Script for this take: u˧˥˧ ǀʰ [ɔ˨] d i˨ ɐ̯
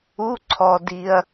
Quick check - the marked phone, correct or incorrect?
correct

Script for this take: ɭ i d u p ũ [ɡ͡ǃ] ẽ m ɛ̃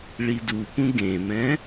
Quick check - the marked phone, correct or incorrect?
incorrect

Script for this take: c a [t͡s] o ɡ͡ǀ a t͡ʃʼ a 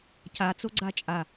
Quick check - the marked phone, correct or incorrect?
correct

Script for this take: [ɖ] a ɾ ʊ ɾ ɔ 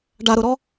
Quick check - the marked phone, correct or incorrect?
correct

